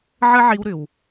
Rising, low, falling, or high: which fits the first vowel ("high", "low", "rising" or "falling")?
high